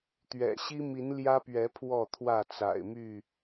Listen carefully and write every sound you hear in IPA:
t̪ ɥ ɛ̰˨˩ ɕ i˦ m i˨˦ n l j ä˦ p ɥ ɛ˨˦ pʰ w ɔ˥˨ t̪ʰ w ä˥˨ t͡s a̰˨˩ ɪ̯ m y˥˨

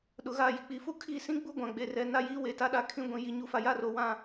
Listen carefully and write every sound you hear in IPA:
ɗ ʊ˨ ɣ a˦˨ j i˨ k͡p i˨ f u˦ kʰ i˦˨ s ĩ˦ ɡ͡b u˦ ɡʷ ã˨ ɡ͡b e˨ r ɛ˨ n a˦ j iː˦ w e˨ t a˦ ɗ a˦ kʰ ĩ˦ ɡʷ ĩ˨ j i˨ ɲ u˨ f a˨ j a˦ r o˨ w ã˦˨

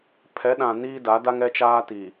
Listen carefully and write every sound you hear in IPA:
pʰ ɛ˨˦ ɗ ã˨ n iː˦ d a˨˦ d a˦ ŋ ɛ˦ t͡ʃ aː˦ t i˨

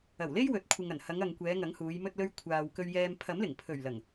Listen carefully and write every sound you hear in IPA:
ɐ˨˩ w l e˥ j w ɵ˨˥ t̚ kʷʰ ɪ˨ ŋ ɐ˨˩ n h ɐ˨˧ ŋ ɐ˨ ŋ kʷ ɛː˨˧ ŋ ɐ˨˥ ŋ h uː˨˧ j m ɵ˧ t̚ l ɵ˧ ɥ kʷʰ aː˨ w k ɵ˧ ɥ j ɛː˧ m pʰ ɐ˨˥ m l ɪ˨˩ ŋ pʰ ɵ˨˩ ɥ l ɐ˨˩ ŋ

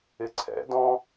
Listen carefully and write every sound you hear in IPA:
ɪ ǀʰ ɛ̰ d ɔ̃

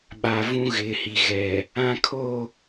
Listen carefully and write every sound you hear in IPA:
ɓ a˨ v ũ˦ ɣ ɪ˨˦ h i˨ ɣ ɛ˨ | ã˦ kʰ o˦˨

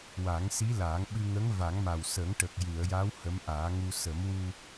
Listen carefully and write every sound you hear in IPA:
w a˨˩˦ ŋ s i˧˥ l aː˨˩˦ ŋ ɓ ɨ˧ ŋ ə˧˥ ŋ v a˨˩˦ ŋ m a˨˩ w s ə˨˩˦ ŋ ʈ ə˨˩ k̚ j ɨ˨˩˨ ə̯ j a˧˥ w h ə˧˥ m ʔ aː˨˩˦ ŋ u˧ s ə˨˩˦ m w u˧

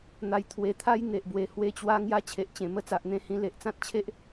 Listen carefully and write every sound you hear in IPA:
n̪ a˨˩ j t̪ʰ w e˨˩ t̪ʰ a˦ j n̪ e˨ ʔ b w e˨˩ h w e˦ t͡ɕ w a˦ ŋ j a˦ t͡ɕʰ e˨ ʔ t͡ɕ ẽ˨˩ m ə˧ t͡s a˨ ʔ n̪ ẽ˧ h ĩ˧ l e˨ ʔ t͡s ã˦ t̚ t͡ɕʰ e˦ ʔ

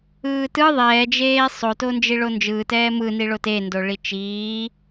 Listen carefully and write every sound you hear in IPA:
ɯː t ɯ ðˤ ɛː d͡ʒ eː sˤ o t o n d͡ʒ i ɭ o n d͡ʒ ɯː t ɛː m ɯ n i ɭ o t e n d o ɭ i t͡ʃ iː

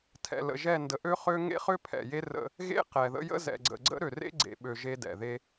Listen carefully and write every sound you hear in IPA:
tʰ ɛ̰˨ l ə̰˨ ʒ ɛ˦˨ n d ə˨ ʔ ø˦ χ ø˦ ŋ ḛ˦ χ ø˦ pʰ ɛ̰˨ j e˦ r ə̰˦ | ɣ ḛ˦ q ɛ˨ ð ə̰˦ j ə̰˦ z ɛ̰˨ ɡ͡ǀ ə̰˨ ɡ͡ǀ ə̰˦ ɾ ø˨ r ḛ˦ ɡ͡ǀ ḛ˨ ɓ ø˨ ʒ e˦ d ɛ̰˨ ð e˦

